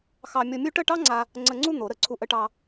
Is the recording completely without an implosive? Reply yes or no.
yes